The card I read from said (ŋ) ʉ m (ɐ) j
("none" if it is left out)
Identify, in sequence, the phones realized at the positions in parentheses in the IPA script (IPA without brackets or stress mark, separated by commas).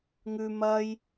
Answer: ŋ, ɐ